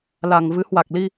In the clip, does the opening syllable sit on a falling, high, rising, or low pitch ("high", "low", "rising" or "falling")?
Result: low